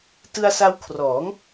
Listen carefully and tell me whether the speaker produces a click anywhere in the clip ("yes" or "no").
no